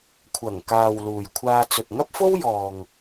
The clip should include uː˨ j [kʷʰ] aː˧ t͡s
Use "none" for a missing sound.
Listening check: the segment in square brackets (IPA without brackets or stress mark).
kʷʰ